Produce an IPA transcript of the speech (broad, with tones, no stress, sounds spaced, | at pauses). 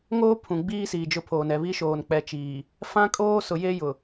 ŋ oː˦ pʰ ũ˨ ɡ͡b iː˦ s iː˨ d͡ʒ ʊ˦ pʰ oː˨ n ɛ˨ β i˦ ʃ oː˨ n k͡p ɛ˨ t͡ʃ iː˨ | f ã˦ kʼ oː˦ s ʊ˨ j e˦ j ʊ˨